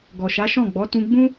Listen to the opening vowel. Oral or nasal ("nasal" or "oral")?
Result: oral